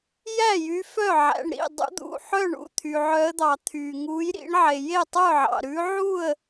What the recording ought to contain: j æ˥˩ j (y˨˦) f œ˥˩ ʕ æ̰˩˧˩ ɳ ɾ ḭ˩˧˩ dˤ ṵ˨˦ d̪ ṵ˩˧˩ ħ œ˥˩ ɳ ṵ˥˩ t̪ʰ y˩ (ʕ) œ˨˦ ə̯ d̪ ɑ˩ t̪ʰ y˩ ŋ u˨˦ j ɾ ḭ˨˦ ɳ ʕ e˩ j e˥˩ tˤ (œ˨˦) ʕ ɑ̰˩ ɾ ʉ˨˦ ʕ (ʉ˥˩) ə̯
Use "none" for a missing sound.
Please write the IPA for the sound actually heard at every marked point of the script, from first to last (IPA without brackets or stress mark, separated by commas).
y˨˦, ʕ, œ˥˩, u˥˩